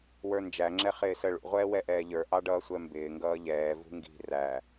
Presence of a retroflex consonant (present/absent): present